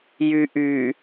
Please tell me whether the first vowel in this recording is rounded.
yes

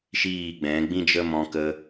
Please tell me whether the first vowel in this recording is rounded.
no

